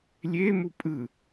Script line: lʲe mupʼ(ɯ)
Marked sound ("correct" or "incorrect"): correct